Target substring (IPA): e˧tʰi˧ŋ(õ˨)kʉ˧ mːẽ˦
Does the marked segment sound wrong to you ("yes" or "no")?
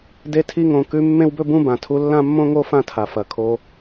no